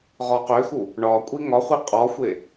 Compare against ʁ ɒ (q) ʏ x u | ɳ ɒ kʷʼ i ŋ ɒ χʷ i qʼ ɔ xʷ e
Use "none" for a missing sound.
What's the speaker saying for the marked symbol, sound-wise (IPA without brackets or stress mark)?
q